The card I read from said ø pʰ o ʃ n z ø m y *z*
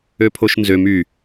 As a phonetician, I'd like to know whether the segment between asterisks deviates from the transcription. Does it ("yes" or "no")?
yes